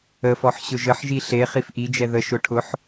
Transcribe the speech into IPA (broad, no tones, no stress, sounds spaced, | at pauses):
ə f ɔ ħ ɕ ʊ ʒ ə ħ ʒ i ɬ e χ i f ʔ i d͡ʒ ɛ ð ə ʃ ʊ ʈʰ ʊ ħ